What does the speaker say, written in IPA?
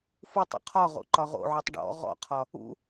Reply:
f u tˤ ṵ qʰ ɒ ʁ o̰ ǃ ɒ ʁ o̰ ʕ u tˤ ɖ ɔ̰ ʁ ɔ̰ qʰ ɒ | ṵ

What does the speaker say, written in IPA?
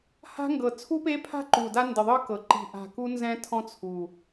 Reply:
h a̤˦˥ ŋ ɡ ɤ˨˩ t͡sʰ u˦˥ p e˦˥ pʰ a̤˦˥ ǃ u˨˩ d a˦˥ n d ɯ˨˩ ðˤ ɯ˦˥ k ɤ˨˩ ǃ i̤˨˩ ʔ a̤˨˩ k u˦˥ n z ɛ̃˦˥ tʰ ɔ̃˦˥ t͡sʰ u˨˩

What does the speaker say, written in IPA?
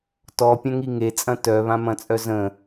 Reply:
t ɔ pʲ ɐ̃ ŋ i ŋ e t͡sʼ ɐ̃ t œ β ã m ɐ̃ t͡sʼ œ z ə̃

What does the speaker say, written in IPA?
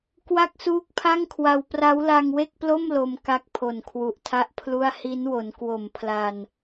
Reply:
k w a˥˩ k̚ s uː˦˥ k̚ pʰ a˥˩ ŋ kʰ w a˧ w p r a˦˥ w l a˧ ŋ w e˥˩ k̚ p l o˥˩ m l o˧ m k a˦˥ k̚ pʰ o˨˩ n kʰ w u˨˩ ʔ tʰ a˥˩ ʔ pʰ l u˥˩ a̯ h i˦˥ n w o˩˦ n k w o˨˩ m pʰ l a˧ n

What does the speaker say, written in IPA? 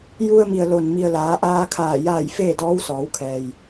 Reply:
j u˧ ə̯ m i˩ ə̯ l o˩ n m i˩ ə̯ l aː˩˧ ʔ aː˧ kʰ aː˧˩ j a˧˩ j f eː˥˨ d ɔː˧˥ w s ɔː˩˧ w kʰ ɛː˩ j

